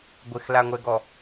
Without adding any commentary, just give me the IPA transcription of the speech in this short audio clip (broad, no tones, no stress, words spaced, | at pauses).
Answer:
ɡʷɪxlaŋʷɛɡɔ